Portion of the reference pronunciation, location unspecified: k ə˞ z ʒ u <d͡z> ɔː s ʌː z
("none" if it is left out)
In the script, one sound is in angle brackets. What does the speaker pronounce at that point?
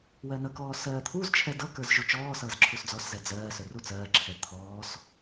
t͡ʃ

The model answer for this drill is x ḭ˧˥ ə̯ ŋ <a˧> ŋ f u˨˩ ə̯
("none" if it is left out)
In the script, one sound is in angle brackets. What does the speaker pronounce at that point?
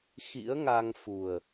a˧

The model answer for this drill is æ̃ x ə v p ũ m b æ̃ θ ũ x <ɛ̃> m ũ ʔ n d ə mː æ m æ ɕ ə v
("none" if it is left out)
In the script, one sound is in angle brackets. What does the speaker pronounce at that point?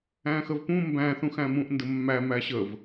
æ̃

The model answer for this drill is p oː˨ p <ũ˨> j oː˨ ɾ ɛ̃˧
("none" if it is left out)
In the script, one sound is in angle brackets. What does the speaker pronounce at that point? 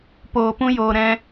ũ˦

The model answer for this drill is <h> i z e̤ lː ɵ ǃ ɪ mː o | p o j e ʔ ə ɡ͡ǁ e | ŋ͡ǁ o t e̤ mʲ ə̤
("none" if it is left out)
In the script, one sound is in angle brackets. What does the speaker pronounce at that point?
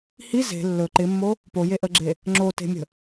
h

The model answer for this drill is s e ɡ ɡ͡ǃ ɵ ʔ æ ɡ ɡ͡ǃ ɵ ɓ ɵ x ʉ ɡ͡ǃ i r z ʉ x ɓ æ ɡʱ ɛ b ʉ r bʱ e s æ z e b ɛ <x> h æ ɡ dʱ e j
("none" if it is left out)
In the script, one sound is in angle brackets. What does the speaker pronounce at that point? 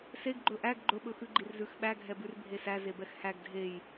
x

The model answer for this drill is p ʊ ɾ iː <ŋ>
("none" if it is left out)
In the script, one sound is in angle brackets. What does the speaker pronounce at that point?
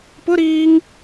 ŋ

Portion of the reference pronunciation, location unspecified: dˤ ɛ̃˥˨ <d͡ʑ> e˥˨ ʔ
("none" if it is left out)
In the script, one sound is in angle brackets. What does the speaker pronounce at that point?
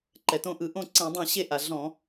ɕ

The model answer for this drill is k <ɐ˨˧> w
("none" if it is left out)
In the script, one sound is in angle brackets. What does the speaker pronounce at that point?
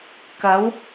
ɐ˨˧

